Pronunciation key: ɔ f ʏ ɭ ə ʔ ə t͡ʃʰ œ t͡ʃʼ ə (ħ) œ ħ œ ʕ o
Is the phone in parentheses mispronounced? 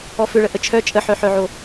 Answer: no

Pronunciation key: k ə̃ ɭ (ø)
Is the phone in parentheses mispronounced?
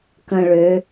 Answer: no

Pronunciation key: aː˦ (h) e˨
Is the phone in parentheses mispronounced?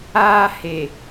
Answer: no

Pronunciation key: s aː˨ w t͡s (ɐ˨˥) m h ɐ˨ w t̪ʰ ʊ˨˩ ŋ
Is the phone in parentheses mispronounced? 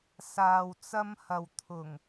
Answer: yes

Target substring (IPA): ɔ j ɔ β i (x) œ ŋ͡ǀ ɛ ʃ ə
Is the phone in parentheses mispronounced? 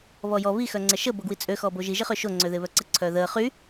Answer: no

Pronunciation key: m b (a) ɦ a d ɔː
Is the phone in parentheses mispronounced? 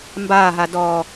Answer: yes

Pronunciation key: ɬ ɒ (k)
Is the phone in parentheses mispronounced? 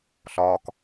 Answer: no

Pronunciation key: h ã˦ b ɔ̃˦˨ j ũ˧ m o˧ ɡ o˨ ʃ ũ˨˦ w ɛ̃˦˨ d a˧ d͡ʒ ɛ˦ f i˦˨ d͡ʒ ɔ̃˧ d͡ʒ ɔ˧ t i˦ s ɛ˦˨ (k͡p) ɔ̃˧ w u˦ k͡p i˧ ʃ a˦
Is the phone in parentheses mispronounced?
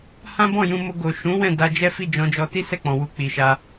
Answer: no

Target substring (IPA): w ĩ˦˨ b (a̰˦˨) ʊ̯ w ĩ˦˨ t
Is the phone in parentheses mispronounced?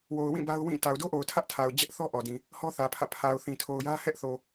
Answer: yes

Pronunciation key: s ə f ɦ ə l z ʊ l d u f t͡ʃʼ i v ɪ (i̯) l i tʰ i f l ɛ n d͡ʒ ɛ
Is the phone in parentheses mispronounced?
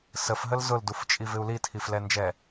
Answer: yes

